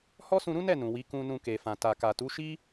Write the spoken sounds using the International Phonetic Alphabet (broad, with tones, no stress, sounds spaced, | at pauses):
h ɔ˦ s ũ˧ ɾ ũ˦ n ɛ˦˨ n ũ˨ w i˨˦ k ũ˧ n ũ˧ k e˨ f ã˨ t a˨ k a˨ t u˨˦ ʃ i˦